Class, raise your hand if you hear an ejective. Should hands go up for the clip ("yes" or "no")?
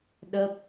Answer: no